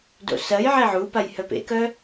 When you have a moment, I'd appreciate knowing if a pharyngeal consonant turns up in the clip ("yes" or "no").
yes